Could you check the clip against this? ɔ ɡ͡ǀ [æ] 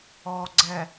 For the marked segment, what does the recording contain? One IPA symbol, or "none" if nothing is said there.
ɛ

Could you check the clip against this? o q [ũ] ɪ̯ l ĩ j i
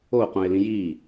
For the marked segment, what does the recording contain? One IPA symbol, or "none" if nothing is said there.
ũ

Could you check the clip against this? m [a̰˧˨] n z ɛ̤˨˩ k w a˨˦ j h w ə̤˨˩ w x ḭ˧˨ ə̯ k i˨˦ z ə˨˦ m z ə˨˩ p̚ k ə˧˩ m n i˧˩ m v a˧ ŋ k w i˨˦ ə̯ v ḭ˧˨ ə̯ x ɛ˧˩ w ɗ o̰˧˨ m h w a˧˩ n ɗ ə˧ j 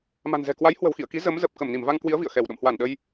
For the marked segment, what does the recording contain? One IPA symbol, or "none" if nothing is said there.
a̤˨˩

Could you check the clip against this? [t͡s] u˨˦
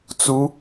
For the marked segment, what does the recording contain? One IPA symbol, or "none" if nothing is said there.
t͡s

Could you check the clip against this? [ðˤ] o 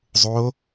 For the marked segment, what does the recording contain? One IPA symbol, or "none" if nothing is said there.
zˤ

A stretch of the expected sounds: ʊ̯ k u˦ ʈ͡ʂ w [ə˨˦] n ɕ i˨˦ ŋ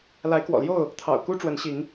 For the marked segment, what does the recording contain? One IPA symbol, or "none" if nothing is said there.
ə˨˦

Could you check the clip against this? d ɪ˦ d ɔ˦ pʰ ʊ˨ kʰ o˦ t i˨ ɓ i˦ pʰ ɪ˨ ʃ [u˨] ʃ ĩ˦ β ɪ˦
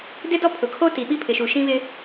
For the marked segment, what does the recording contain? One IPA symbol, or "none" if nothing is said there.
u˨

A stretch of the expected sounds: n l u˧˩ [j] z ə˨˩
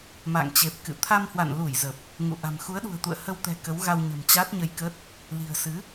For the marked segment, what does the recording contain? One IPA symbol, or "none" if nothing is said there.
j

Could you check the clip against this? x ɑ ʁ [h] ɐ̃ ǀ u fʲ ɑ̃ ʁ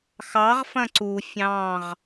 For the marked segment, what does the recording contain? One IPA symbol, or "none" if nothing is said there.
f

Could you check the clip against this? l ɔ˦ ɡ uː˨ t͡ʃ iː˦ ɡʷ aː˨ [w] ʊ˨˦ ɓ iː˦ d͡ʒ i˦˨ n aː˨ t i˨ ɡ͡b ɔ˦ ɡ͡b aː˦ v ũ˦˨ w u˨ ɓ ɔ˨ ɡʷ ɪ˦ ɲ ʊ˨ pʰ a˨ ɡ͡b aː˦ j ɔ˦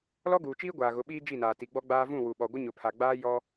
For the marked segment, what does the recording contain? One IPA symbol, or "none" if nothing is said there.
ɣ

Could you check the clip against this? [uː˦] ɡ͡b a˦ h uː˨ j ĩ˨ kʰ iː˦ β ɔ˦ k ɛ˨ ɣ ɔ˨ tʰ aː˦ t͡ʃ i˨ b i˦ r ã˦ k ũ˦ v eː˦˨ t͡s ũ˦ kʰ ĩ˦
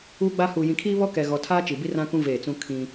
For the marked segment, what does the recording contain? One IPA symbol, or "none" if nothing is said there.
uː˦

